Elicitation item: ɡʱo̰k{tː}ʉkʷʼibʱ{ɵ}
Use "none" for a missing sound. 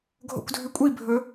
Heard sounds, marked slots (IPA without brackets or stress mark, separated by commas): dʱ, ɵ